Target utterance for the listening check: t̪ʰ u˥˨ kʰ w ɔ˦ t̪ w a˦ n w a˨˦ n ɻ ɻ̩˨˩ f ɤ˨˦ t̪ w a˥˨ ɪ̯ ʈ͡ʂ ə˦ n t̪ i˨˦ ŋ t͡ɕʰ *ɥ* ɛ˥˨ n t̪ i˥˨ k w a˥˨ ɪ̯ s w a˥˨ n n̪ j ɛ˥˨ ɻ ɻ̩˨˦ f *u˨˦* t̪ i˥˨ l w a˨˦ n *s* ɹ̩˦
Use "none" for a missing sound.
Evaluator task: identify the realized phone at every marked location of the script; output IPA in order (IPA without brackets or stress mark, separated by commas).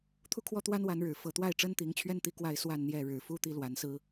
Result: ɥ, u˦, s